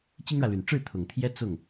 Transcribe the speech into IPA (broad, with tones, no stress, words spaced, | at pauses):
t͡ɕi˥ŋɻä˨ly˨˩n ʈ͡ʂɻ̩˥˩ t̪ʰʊ˨˩ŋt̪ʰjɛ˥ t͡sʊ˥˩ŋ